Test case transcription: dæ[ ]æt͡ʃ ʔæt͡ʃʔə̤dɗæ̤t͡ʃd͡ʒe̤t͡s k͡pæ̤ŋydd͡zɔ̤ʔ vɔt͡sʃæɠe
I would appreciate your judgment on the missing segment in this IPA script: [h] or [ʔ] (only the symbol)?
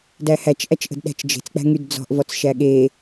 h